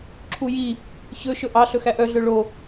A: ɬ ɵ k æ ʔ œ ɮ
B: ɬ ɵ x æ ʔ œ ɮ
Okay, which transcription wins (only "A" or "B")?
B